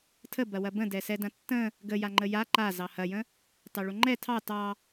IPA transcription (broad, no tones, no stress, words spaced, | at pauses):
tʰəbɐ wɐbə̃dɛ sɛdɐ̃tːə̃ | ɡəja ŋ͡ǃəja ǃa zɑhɐjə̃ | tɑɭoŋ͡ǃɛ tʰɑ tɑ